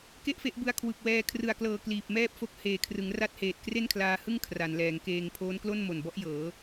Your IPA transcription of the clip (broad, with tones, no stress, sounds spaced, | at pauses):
k e˥˩ ʔ f e˦˥ ʔ b ɯ˧ a̯ kʰ w ɯ˨˩ k̚ w ɛː˧ kʰ r ɯ˨˩ a̯ k l ɤː˨˩ k l iː˨˩ p̚ m ɛː˥˩ p̚ f o˦˥ k̚ h eː˨˩ kʰ r ɯ˩˦ ŋ r a˥˩ t̚ h eː˨˩ t̚ k r e˥˩ n kʰ l aː˧ h ɯ˥˩ ŋ kʰ r a˩˦ n l ɛː˩˦ ŋ k eː˧ ŋ pʰ oː˦˥ n k l o˥˩ n m o˨˩ n b ɔ˦˥ ʔ j ɤː˩˦